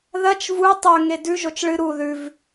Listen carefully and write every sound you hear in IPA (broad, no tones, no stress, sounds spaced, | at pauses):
ð ɐ t͡ʃ v u tˤ ɵ ŋ e d ʉ ʒ o t͡ʃ ɭ ɨ ɾ u ð ʉ v